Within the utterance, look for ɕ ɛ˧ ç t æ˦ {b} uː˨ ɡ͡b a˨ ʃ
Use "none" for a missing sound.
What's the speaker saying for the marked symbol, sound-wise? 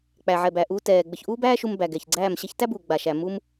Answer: b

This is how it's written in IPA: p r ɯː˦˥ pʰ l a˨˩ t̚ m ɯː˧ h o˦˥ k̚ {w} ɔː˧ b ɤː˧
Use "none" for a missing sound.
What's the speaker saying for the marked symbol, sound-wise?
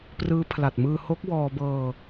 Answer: w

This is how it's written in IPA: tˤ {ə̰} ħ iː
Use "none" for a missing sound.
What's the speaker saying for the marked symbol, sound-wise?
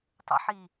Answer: ə̰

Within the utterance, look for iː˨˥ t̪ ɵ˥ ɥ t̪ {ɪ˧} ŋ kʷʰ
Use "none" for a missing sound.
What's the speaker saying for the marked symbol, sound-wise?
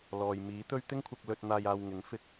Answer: ɪ˥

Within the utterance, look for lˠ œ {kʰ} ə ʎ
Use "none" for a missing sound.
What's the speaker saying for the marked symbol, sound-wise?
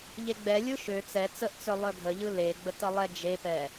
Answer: ɡʱ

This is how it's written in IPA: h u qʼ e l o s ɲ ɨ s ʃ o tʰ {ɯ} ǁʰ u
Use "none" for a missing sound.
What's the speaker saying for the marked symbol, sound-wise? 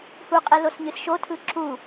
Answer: ɯ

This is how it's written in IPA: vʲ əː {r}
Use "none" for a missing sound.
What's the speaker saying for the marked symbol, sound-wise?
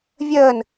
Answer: n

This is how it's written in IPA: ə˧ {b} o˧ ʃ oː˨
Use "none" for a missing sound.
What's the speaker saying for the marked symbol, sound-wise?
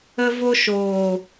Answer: v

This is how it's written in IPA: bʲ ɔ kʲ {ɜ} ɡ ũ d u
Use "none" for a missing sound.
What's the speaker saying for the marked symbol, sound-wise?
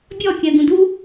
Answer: ɜ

